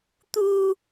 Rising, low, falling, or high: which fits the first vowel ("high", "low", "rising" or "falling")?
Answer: high